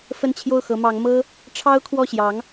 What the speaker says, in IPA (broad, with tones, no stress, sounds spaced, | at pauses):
f ə˥˧ n t͡ɕʰ j o˥˩ ʊ̯ x ɤ˧˥ m ɑ˧˥ ŋ m ɤ˥ | ʈ͡ʂʰ ɑ˥ ʊ̯ kʰ w ɔ˥˩ ɕ j ɑ˧˥ ŋ